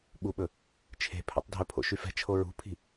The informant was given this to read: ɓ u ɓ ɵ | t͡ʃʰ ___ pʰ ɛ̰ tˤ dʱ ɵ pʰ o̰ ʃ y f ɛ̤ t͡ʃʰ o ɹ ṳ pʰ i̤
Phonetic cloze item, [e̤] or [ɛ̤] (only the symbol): e̤